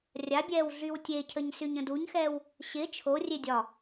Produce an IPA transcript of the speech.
rʲabʲɛːw ɮywtʲecʰəɲ syɲə̃duɲxɛːw | ɕɪ t͡ʃʰorʲe dʲɒ

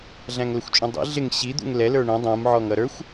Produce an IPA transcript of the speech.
ɮæ̃ŋləxʷt͡ʃʼũdˤḭ ɮɪŋ ɕi d̪ṵŋlɛ lə˞ɳə̃ dˤũm ʕɔŋʌɾə˞xʷ

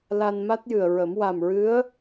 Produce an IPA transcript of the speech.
la˧nma˦˥t̚jɨ˨˩ə̯ɹə˨˩˦m wa˨˩mɹɨ˧˥ə̯

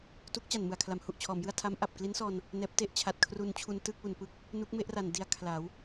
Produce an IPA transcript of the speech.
tu˦˥k̚t͡ɕa˨˩nmɯ˨˩a̯ kʰla˩˦mhu˨˩ʔt͡ɕʰɔː˩˦mjɯ˥˩a̯ tʰa˦˥m ʔa˨˩p̚kli˦˥nsɔː˧n | nɛː˦˥p̚ te˥˩ʔt͡ɕʰa˨˩t̚kʰru˧nt͡ɕʰu˧n tɯ˥˩k̚wu˨˩n pɯ˦˥k̚ | nu˦˥k̚me˦˥ʔra˨˩n di˧a̯ kʰla˩˦w

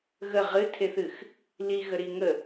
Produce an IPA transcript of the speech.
ɣə ʁɨtʰeθɨx | liɣəɾi ŋə

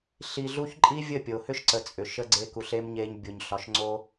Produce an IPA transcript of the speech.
ɬi˧ɮu˦ç ǃʼi˦vʲə˦˨pʲo˨ hʏ˦ʃǀə˨t͡sʼʏ˨ ʃə˦ɡ͡ǀe˦ ku˧ɬe˦mɲe˦ɲ bʲo˧ɲɬɒ˧ʃŋ͡ǀo˦

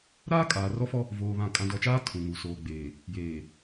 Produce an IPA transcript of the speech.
ɾaː˦kʼaː˨rɔ˦fɔ˦ | voː˨βã˨ kʼã˨dɔ˨t͡ʃaː˦ tʰũ˨ŋu˨ soː˨ɡ͡beː˨ | jeː˨

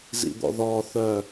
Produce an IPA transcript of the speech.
zḭd̪ɔ̰ðɔː θœ

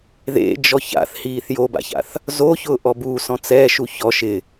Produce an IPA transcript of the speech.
ðḛd͡ʒɔ ça̰θhiːθ joba̰ça̰θ | zoçʊːʔɔ busɔ̃ t͡sɛːʃu çɔ ʃɪ

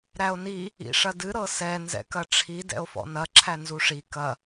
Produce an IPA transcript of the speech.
ɾæo̯ni | ḭʂɐdɨ ɾɤsɛ nzɛ̰kɐʈ͡ʂʰi dɛ̰o̯fɔ̰nɐ ǁʰænzuʂi kɐ

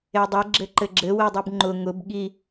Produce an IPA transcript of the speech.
edˤe ɡ͡ǁɘǃɘɡ͡ǁɘ widˤubŋ͡ǃʊ ŋʊb ɠi

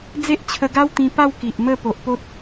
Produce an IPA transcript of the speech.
d͡ze˦ʔt͡ɕʰə˧ɡa˦w t̪ĩ˧pa˥˧w ki˨ʔmə˥˧ po˨ʔpo˦t̚

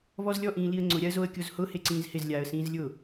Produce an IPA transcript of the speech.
vɔzlʲɔʔĩː liə̯ŋ͡ǀʊɾʲaə̯ zoə̯kʲozhʊ heǀĩːzhɪzlʲaːə̯ sĩːzlʲʊ

